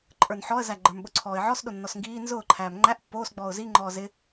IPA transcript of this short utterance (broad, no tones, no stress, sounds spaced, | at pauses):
ǃʼ ə˞ n ħ ɔ ə̯ z æ ɡ͡ǃ ə˞ m ɓ ʊ ǀʰ ɔː ɪ̯ ʕ ɔ s ɗ ʊ nː ɔ s ŋ ɡ iː n z ʊː ǃʰ æː m ŋ͡ǃ æ ʔ pː oː s ɡ͡b ɔː ʊ̯ z i ŋ͡ǃ ɔː z ɪ